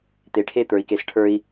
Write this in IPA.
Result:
t̪ e˨ ʈʰ e˦˨ t̪ ə˞˨ i̯ k e˨ s ʈʰ ə˞˦ i̯

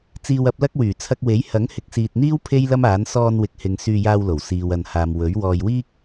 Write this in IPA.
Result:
t͡s iː˧ w ɐ˨˥ p̚ l ɐ˥ k̚ w yː˨˩ t͡sʰ ɐ˧ k̚ w e˨˥ j h ɐ˨˥ ŋ h ɪ˨˥ k̚ s iː˨ t̚ n̪ iː˥ w pʰ e˥ j l ɐ˥ m aː˨˥ n s ɔː˧ n w ɪ˨ k̚ h ɪ˨˧ ŋ s yː˧ j aː˧ w l o˨˩ w s iː˨ w ɐ˨ n h aː˨ m w ɵ˨˥ ɥ w ɔː˨ j w iː˥ k̚

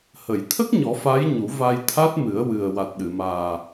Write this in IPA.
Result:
h ə˨˩˨ j t̪ʰ ə˦˥ k̚ ɲ ɔ˨˩˦ f a˧˥ j ɲ u˨˩˦ v a˧ j t̪ʰ a˦˥ t̚ m ɨ˨˩˦ ə̯ w ɨ˨˩ ə̯ w a˨˩ t̚ ɗ ɨ˨˩˨ m aː˨˩

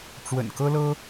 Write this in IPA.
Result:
ʈ͡ʂ w ə̰˨˩ n k ɤ˥ l ɤ˥

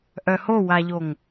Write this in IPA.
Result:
ʔ œ h o w a ʎ o ŋ

